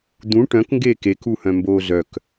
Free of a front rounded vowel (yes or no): no